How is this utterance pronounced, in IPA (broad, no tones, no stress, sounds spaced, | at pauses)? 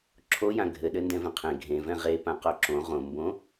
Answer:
ǁʰ o j ã ɡʱ ɘ ɗ ɘ n d ɛ̃ v ẽ qʰ ẽ ɡʱ ẽ v ɛ̃ ʁ e p ã q o ǁ õ ʁ õ m b õ